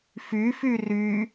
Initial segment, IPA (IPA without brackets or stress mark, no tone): f